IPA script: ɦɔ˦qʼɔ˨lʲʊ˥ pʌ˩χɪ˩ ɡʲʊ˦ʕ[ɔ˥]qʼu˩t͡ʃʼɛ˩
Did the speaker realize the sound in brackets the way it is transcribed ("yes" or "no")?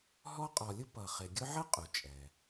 no